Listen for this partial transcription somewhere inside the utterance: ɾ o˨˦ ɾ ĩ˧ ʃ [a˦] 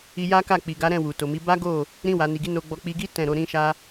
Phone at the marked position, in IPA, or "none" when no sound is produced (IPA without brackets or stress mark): a˦